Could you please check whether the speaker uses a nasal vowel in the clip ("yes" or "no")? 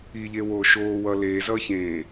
yes